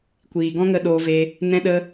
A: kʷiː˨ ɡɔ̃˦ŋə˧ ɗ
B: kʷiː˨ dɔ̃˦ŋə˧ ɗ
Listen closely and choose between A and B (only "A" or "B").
A